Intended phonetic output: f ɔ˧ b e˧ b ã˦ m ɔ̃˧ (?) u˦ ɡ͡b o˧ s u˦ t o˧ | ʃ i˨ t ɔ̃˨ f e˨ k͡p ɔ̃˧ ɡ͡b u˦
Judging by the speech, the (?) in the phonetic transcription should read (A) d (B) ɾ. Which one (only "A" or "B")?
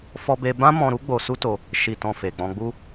B